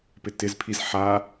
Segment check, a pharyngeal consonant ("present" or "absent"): present